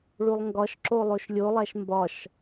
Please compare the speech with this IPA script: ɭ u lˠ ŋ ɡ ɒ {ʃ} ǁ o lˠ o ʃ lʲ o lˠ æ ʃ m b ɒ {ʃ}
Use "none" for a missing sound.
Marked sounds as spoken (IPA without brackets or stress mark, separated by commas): ʃ, ʃ